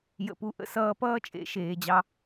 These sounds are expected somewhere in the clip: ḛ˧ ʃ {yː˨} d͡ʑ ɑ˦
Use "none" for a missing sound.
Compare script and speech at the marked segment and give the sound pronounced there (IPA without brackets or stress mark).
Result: eː˨